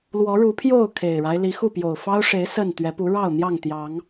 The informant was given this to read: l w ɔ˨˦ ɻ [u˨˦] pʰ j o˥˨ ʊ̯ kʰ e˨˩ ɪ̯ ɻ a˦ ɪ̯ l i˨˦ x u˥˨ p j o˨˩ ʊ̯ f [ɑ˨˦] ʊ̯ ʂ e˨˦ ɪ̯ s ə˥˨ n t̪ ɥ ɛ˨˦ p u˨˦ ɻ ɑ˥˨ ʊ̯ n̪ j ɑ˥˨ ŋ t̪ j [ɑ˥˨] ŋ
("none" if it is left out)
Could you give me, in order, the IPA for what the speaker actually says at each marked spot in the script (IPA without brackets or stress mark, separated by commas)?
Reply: u˨˦, ɑ˦, ɑ˨˦